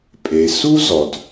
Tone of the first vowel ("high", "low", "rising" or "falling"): low